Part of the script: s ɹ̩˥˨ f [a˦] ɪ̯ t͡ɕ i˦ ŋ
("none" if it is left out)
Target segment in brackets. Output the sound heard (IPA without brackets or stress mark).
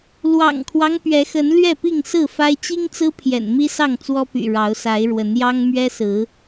a˦